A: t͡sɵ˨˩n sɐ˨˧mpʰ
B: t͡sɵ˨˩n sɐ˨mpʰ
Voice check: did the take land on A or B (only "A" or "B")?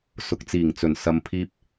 B